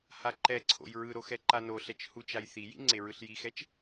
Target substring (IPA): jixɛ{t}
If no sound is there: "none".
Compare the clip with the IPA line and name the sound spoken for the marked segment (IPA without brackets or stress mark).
t͡ʃ